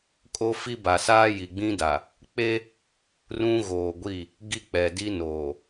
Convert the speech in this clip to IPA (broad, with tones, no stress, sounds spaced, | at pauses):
kʼ o˦ f i˦ b a˨ s aː˦ j i˨ ɡ͡b ĩ˦ d a˨ | k͡p e˦ | r ũ˦ ɣ oː˨ ɡʷ i˦˨ | ɡ i˦ k͡p ɛ˨ d i˦ n oː˨